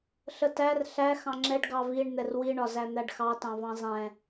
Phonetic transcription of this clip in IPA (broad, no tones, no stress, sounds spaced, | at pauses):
ɬ ə t æ r ɬ æ x ɑ̃ ŋ͡ǁ ɛ ɖ ɡ ɑ v i ɳ n̪ ɛ r w i ɳ ɒ z æ n̪ æ ɖ x ɑ t ɑ̃ v ɑ̃ zˤ ɛ̃